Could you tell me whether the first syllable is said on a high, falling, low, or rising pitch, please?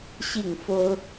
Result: falling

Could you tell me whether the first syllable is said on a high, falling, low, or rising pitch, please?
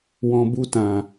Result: low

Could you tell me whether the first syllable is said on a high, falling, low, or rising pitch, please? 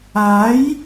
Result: rising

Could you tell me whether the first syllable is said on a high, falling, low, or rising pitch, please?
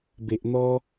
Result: low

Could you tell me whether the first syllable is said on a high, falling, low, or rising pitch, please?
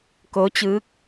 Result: rising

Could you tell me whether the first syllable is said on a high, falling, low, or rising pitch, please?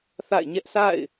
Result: falling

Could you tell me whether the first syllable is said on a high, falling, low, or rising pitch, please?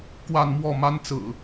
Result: falling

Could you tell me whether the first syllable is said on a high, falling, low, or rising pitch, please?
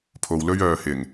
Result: low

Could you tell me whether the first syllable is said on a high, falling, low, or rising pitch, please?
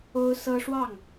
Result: high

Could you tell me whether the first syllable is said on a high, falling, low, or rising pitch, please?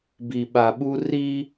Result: low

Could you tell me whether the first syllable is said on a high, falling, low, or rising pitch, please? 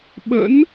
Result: rising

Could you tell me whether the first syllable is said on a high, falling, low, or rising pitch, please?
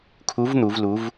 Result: rising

